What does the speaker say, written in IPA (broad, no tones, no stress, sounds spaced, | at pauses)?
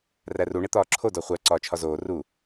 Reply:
r æ r u ɳ e t̪ ɒː ǁʰ o d ɒ χʷ æ ǀ ɒː t͡ʃʰ ɒ z oː r u